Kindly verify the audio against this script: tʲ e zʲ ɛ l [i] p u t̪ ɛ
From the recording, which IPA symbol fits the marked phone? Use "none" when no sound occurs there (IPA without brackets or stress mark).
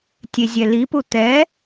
i